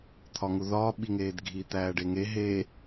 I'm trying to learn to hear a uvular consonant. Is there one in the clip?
no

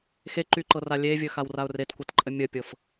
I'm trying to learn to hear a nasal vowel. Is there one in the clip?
no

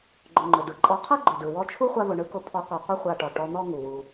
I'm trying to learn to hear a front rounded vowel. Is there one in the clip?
no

